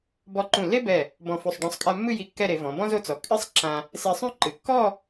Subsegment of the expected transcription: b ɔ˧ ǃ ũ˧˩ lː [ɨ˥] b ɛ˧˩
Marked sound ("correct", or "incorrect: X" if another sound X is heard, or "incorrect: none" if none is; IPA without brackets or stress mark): incorrect: e˥